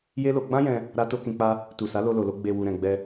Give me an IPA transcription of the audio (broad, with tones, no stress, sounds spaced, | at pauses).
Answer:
j e˦ l o˧ ɡ͡b ã˦ j ɛ̃˧ | ɾ a˦ t o˦ k ĩ˧ k͡p a˦ | t u˨ s a˨˦ l o˧ l o˨ l o˧ ɡ͡b e˨ w u˨ ɾ ɛ̃˨ ɡ͡b ɛ˧